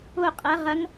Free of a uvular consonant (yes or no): no